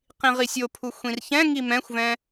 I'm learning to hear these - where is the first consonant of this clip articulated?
uvula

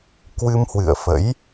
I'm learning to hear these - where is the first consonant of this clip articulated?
velum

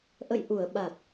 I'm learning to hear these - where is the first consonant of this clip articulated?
throat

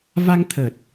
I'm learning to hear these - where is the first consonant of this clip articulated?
lips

